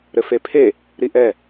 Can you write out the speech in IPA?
ɾɘfepʰe | ɾiʔɛ

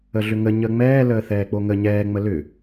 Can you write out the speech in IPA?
əɮʏŋə ɲəŋ͡mɛːləː θɛːk͡poŋə ɲɛːŋ͡mə lʏ

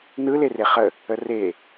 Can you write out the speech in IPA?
nɯ lereχə | əre

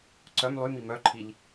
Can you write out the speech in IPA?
ǀœm lˠymi mœǃʰiʎ

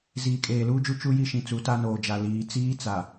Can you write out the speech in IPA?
ziː˨kʼeː˨luː˦d͡ʒu˦ t͡ʃu˦ji˦ʃĩ˨t͡su˨˦ ta˦noː˨d͡ʒa˨ liː˨t͡siː˦t͡sa˨

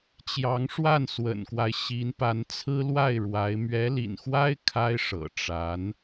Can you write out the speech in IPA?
t͡ɕjɑ˧˥ŋʂwa˥˩nswə̰˨˩nkwa˦ɪ̯ ɕi˧˥npa˧˥n t͡sʰɹ̩˥lwa˥˩ɪ̯ɻwa˧˥ɪ̯ mɥɛ˧˥lḭ˨˩nxwa˥ɪ̯ kʰa˥ɪ̯ʂɤ̰˨˩ ʈ͡ʂa˧˥n

